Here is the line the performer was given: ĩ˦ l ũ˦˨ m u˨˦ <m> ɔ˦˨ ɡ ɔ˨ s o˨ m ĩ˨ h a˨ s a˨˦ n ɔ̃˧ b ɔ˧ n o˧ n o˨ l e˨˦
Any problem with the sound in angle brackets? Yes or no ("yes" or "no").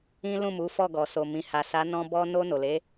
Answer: yes